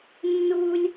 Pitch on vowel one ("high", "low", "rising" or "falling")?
high